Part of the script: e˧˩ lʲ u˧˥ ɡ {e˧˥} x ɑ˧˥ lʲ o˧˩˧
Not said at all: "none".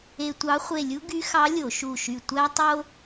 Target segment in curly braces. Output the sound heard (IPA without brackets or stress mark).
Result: y˧˥